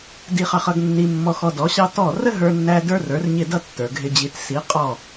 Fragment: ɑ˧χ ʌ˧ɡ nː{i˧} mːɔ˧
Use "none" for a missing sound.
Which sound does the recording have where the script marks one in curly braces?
i˧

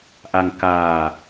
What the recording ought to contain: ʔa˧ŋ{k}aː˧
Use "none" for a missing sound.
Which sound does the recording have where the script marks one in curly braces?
k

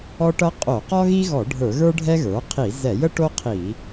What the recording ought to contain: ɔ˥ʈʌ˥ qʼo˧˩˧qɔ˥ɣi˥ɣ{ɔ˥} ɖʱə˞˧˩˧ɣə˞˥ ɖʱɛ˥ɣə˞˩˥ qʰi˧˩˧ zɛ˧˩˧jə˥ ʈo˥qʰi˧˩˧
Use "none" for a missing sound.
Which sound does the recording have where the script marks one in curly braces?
ɔ˧˩˧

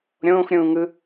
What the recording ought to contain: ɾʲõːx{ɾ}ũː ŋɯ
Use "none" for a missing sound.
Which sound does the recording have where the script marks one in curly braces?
ɾʲ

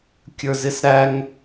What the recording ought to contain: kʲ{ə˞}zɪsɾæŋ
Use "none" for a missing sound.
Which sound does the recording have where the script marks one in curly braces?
ə˞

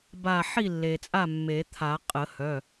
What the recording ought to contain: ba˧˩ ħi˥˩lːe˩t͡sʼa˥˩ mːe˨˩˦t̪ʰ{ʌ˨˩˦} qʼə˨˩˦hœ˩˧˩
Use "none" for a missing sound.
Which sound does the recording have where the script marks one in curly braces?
a˨˩˦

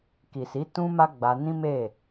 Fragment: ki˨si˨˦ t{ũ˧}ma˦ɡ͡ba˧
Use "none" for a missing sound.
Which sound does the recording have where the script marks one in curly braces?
ũ˦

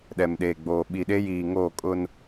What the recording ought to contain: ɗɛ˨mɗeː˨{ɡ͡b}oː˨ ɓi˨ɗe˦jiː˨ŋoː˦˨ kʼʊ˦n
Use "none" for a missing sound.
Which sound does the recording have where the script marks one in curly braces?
ɡ͡b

